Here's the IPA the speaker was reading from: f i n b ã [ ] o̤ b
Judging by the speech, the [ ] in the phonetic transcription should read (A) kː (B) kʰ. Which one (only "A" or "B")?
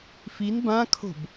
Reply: B